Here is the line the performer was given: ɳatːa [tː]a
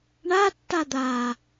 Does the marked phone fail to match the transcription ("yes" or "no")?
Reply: yes